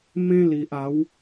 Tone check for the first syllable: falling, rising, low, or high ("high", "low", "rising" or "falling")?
high